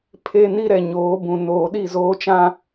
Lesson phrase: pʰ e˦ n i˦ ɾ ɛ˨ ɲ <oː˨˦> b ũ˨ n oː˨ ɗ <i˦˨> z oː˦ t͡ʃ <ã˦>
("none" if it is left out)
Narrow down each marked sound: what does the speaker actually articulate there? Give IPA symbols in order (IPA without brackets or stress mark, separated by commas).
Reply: oː˨˦, i˦˨, ã˦